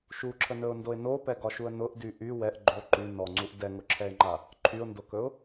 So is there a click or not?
yes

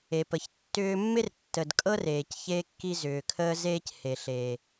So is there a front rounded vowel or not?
yes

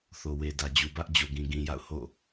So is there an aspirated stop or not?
no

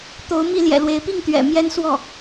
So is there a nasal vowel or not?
no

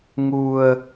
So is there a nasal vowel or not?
no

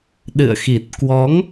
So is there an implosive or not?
yes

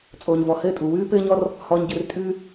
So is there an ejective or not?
yes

